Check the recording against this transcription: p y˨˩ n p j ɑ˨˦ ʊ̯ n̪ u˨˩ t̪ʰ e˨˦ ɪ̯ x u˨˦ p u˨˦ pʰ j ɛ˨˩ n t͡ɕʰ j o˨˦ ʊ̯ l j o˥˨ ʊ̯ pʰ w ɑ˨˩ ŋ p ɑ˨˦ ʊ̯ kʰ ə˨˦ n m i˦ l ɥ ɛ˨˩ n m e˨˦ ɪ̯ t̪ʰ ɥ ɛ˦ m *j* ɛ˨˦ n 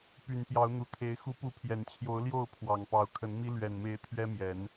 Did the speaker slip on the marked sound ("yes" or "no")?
no